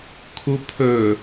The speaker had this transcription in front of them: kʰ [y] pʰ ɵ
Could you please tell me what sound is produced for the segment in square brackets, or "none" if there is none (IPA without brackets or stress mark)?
u